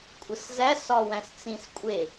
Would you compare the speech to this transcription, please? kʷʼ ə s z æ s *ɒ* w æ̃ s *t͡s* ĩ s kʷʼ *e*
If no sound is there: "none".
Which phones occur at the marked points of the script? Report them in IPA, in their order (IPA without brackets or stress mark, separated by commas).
ɒ, t͡s, e